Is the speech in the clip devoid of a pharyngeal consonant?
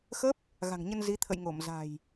yes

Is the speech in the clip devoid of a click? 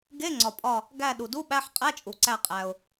no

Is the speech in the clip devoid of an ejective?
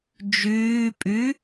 no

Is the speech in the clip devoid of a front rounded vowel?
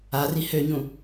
no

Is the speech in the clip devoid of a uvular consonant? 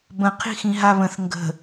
no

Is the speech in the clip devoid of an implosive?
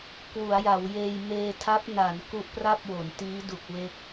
yes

